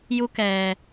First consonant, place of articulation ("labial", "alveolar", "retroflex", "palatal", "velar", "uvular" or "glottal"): palatal